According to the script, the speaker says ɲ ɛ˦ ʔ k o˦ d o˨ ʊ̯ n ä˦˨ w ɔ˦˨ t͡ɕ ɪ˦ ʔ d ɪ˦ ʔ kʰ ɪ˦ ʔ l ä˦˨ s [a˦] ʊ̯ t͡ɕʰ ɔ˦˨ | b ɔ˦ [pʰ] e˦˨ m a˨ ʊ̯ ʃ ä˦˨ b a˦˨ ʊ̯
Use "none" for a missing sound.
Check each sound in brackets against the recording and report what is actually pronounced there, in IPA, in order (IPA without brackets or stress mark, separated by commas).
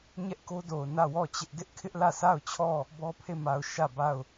a˦˨, pʰ